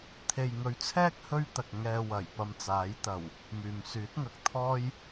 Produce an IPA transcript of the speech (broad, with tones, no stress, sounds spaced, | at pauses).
t̪ʰ e˨ j ŋ ɵ˨˧ ɥ t͡sʰ ɛː˥ k̚ h ɵ˥ ɥ t̪ ɐ˨ k̚ ŋ ɛː˧ w ɐ˨˩ j p ɐ˧ m t͡s aː˨˥ j t̪ ɐ˨˩ w | m yː˨ m s yː˨˥ t̚ ŋ ɐ˨ k̚ t̪ʰ ɔː˥ j